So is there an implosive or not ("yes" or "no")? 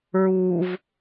no